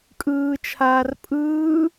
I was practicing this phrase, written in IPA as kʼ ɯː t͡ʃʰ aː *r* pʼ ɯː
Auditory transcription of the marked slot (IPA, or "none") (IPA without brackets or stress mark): r